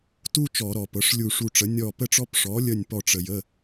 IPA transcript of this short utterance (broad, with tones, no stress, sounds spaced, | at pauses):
t u˥ t͡ʃ ɔ˧˩˧ ɾ ɔ˩ p ɤ˩˧˩ ʂ lʲ u˧˩ ʂ u˧˩ ʈ͡ʂ ə˩˥ nʲ ɔ˧˩ p ə˥ ʈ͡ʂ ɔ˥ p ʂ ɔ˩˥ lʲ ə˧˩ nʲ p ɔ˧˩ ʈ͡ʂ ə˩ j ə˩˧˩